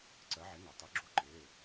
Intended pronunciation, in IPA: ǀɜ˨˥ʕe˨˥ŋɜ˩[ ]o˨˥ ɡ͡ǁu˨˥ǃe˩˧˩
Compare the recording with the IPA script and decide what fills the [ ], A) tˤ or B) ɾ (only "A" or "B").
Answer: A